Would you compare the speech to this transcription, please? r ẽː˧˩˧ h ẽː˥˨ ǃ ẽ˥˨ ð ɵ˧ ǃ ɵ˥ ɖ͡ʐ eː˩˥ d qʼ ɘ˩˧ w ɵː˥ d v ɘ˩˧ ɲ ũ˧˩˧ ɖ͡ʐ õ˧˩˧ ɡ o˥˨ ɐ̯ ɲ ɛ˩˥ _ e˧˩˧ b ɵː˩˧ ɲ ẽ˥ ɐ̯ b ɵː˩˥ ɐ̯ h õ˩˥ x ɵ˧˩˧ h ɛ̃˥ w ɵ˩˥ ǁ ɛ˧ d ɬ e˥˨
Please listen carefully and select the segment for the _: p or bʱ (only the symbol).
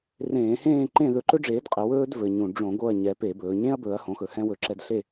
p